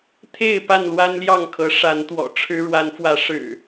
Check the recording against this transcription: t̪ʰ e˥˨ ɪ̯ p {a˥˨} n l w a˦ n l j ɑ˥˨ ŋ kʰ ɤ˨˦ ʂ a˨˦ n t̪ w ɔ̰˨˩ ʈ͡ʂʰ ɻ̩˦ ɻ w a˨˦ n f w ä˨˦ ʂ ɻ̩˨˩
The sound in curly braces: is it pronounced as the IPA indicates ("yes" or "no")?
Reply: yes